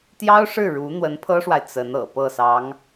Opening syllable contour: high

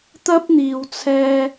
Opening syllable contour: high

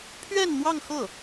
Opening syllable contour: falling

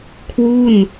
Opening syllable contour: falling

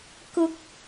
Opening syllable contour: high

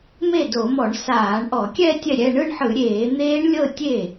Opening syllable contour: falling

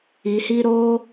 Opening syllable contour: low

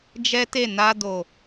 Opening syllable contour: high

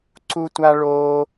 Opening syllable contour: high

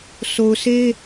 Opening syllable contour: low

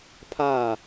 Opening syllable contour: falling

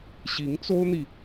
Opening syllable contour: rising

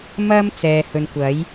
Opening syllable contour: high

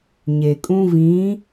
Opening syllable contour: low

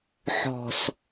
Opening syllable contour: low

